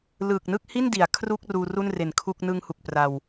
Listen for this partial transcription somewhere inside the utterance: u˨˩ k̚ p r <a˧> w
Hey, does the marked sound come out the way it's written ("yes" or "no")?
yes